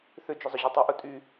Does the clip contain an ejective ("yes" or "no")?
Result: yes